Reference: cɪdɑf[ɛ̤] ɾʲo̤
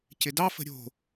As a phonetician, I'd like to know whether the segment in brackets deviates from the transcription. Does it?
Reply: yes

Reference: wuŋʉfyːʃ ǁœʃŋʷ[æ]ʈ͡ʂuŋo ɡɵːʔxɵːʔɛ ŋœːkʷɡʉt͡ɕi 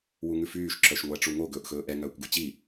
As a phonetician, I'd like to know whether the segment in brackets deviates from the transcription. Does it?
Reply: no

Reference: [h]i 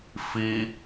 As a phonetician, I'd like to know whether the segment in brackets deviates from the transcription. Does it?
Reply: yes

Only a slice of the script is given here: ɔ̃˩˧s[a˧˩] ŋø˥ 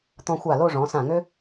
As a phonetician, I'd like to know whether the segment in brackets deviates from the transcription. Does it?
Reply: yes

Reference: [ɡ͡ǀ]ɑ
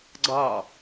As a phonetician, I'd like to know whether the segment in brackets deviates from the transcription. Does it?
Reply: no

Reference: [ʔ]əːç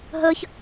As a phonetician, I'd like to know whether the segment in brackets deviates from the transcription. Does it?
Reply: yes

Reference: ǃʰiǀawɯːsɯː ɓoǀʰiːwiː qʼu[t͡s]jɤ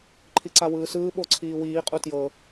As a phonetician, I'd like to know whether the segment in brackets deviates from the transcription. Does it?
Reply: yes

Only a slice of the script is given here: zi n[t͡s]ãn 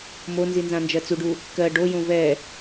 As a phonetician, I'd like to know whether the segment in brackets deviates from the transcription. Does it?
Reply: yes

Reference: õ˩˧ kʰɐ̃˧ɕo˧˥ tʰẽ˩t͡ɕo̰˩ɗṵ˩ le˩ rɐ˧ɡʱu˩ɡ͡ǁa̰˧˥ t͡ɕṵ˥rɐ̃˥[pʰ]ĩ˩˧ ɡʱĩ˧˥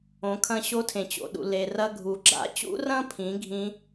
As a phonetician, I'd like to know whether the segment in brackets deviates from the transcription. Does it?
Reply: no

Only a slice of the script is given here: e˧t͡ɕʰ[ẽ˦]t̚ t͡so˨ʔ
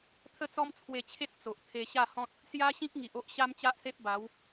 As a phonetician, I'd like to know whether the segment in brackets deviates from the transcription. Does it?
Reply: yes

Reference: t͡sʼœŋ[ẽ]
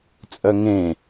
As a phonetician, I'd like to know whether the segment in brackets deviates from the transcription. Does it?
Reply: no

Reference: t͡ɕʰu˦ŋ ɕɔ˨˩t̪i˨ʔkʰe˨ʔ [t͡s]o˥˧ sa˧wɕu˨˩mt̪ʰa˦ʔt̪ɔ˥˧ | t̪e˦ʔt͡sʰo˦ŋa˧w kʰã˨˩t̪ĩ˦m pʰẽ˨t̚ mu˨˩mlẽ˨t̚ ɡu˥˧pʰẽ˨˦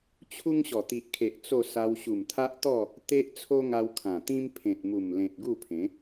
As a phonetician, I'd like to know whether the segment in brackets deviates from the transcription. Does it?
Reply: no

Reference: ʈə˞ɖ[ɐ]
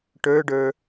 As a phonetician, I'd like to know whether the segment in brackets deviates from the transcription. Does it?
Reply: yes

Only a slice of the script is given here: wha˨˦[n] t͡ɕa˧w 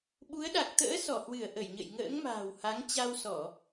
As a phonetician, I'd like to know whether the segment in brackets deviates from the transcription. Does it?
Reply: yes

